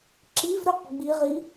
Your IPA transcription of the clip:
ǁ i v ɾ ø q ɡ͡b i ʁ i

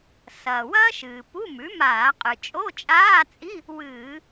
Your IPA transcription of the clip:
s ɐː˩ w ɐː˥ ʃ ɨː˩ p u˧˥˧ m ʉ˩˥ m aː˧˩˧ qʼ ɨ˩ t͡ʃʼ o˧˥˧ t͡ʃʼ aː˧˥˧ t͡sʼ i˧˥˧ | w ɨː˧˩˧

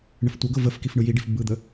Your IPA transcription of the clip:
ɳ ə f tʷ ɤ ɡ ɤ v ə f k i f ɳ ɯ j i ɖ i f b ɯ d̪ ə

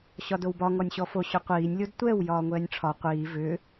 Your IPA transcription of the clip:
ɕ ɒ d o w b ɒ ŋ ɔ nʲ ɕ ɔ f o ɕ ʏ qʷ iː nʲ lʲ o d tʷ ɛ w j ɒː ŋʷ ɛː nʲ ʈ͡ʂʰ ɒ qʷ iː v ʏ

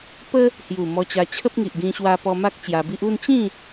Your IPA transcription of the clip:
p ə˦ | h j u˨˩ m ɔ˧ t͡ɕ a˧ t͡ɕʰ ə˦ p̚ ŋ i˨ ʔ ɡ ĩ˧ ɕ w a˧ p ɔ˧ m a˦ k̚ t͡ɕ j a˧ b i˦ ʔ u˥˧ n t͡ɕ ĩ˥˧

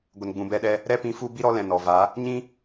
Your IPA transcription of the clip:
ɡʷ ə˨ n ɡ͡b ũ˨ b ɛ˧ ɗ ɛ˧ | ɾ ɛ˦ p ĩ˧ f u˦ b i˦ ɾ ɔ˦ l ɛ̃˨ n ɔ˨ v a˨˦ | ɲ ĩ˦

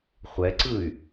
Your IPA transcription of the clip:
χʷ ɛ ǀ ɯ y̯

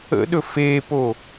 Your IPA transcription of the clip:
ə̰ ɗ ɵ f eː p o

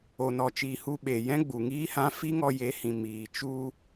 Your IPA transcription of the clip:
o˧ n ɔ˧ t͡ʃ iː˧ h u˧ ɓ e˨ j ɛ̃˦ ɡ͡b u˨ ŋ iː˦ h ã˦ f i˦ ŋ ɔ˧ j e˨˦ h ĩ˨ m iː˨ t͡ʃ u˧

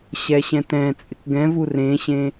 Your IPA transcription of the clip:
ɕ ɛ ɕ ɛ̃ t ɛ̃ t͡sʼ ɪ k ɡ ɛ̃ v u r ẽ ɕ ẽ

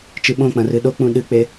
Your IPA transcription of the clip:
t͡ʃ ɨ ɓ õ k͡p ɐ̃ r ɨ ɗ o k͡p ũ ɗ ɨ k͡p e

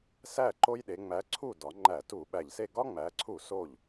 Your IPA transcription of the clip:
s æ˥˩ ǃ o˦ j ɗ e˩˧ ŋ͡m æ˨˥ ǀʰ u˥˩ d ɒ˩˧ ŋ͡ǃ æ˧˩˧ t u˧˩˧ ɓ æ˨˩ ʎ s e˥˩ ɡ ɒ˦ ŋ͡m æ˩˧ ǀʰ u˧˩˧ s o˥˩ ʎ

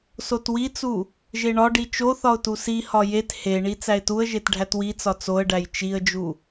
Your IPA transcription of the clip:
s o t w i t͡s u | ʒ e ɳ ɒ ɖ i t͡ʃ o θ ɒ ʊ̯ t u s i h ɒ j e t h e ɳ i t͡s æ ɪ̯ t u ə̯ ʒ e t ɖʱ æ t w i t͡s ɒ t͡s o ə̯ ɖ æ j t͡ʃ i ə̯ d͡ʒ u

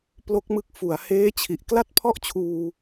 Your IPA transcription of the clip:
p l o˦˥ k̚ m ɯ˦˥ k̚ f u˩˦ a̯ h eː˦˥ t͡ɕʰ i˨˩ ʔ k l a˥˩ t̚ pʰ ɔ˥˩ ʔ t͡ɕʰ uː˧

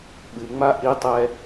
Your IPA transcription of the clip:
ɓ ɨ ŋ͡m a ʔ i tˤ ɛ

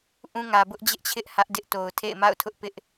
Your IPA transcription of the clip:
ʔ ũ˦ ŋ ä˨ b ʊ˦ ʔ d͡ʑ ɪ˦ ʔ t͡ɕʰ ɪ˦ ʔ h ä˦ ʔ d ɪ˦ ʔ t o˨ ʊ̯ tʰ ḛ˦˨ ɪ̯ m a̰˦˨ ʊ̯ tʰ ʊ˦ ʔ p ɪ˦ ʔ

